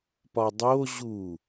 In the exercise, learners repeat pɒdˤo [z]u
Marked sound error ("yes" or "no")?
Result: yes